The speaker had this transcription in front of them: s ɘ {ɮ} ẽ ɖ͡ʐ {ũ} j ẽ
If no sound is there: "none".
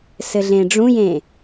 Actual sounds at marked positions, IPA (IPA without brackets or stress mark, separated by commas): ɮ, ũ